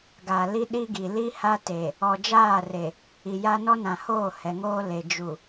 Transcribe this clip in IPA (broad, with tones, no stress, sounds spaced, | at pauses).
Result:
ɡ a˨ l i˦ ɗ i˦ ɡ i˨ l i˦ h a˦ t e˨ | ɔ˨ d͡ʒ aː˦˨ r e˨ | i˨ j a˦ n ɔ˦ n ã˨ h oː˦˨ h ɛ˨ ŋ oː˦ l e˨ d͡ʒ u˨